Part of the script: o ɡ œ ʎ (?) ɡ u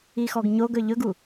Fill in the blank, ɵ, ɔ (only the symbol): ɵ